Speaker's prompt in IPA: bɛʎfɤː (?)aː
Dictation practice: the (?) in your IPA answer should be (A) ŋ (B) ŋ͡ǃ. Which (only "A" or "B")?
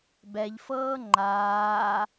B